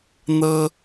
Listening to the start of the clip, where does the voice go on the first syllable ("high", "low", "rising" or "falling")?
high